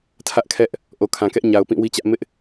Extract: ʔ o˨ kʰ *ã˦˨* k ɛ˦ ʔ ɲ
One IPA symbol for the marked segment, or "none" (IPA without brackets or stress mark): ã˨